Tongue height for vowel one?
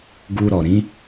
high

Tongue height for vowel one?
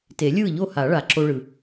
mid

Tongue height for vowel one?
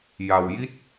low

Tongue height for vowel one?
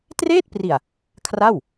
mid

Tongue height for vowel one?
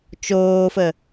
mid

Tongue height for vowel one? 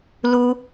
high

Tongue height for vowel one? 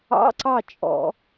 low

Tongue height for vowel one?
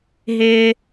high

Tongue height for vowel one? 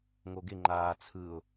mid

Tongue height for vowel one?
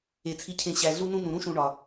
mid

